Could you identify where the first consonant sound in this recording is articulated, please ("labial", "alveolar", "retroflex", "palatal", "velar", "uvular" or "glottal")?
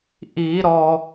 glottal